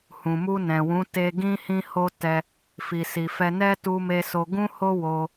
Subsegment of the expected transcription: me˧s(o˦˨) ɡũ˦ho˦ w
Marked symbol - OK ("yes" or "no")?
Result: no